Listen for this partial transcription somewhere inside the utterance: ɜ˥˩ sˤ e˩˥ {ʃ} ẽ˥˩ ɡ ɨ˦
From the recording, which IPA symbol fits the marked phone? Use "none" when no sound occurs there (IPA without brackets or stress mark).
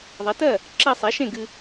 ʃ